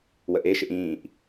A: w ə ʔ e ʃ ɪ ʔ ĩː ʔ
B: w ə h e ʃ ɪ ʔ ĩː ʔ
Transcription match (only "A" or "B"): A